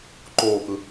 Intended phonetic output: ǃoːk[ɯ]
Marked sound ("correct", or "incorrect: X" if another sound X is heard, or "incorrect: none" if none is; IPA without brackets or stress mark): correct